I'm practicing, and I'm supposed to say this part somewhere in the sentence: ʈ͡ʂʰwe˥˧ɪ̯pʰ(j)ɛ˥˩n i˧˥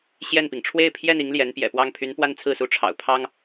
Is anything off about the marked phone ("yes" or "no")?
no